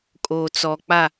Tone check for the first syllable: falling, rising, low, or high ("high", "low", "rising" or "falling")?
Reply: low